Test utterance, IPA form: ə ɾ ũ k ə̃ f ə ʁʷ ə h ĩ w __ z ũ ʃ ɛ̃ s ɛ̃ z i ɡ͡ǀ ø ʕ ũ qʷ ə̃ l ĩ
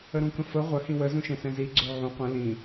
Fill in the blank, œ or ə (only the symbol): ə